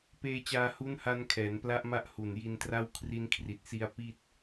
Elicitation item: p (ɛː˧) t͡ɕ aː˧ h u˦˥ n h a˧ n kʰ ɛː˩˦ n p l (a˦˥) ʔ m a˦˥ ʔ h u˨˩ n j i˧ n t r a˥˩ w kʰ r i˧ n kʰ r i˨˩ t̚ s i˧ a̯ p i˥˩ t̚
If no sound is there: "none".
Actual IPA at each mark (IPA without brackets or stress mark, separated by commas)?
eː˧, a˦˥